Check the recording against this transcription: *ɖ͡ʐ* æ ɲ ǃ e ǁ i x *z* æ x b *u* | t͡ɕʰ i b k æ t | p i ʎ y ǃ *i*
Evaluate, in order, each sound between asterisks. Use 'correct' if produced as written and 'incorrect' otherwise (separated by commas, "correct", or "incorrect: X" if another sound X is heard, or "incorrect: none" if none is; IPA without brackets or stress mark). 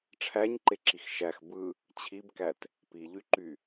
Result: incorrect: ʈ͡ʂʰ, incorrect: ʃ, incorrect: ɯ, incorrect: y